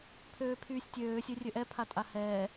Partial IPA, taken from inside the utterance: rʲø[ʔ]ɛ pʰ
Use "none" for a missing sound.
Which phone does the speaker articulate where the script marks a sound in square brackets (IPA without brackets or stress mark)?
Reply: ʔ